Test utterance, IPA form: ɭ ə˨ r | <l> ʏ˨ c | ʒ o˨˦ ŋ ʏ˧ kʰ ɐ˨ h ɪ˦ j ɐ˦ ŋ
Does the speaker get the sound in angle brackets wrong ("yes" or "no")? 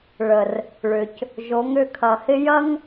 yes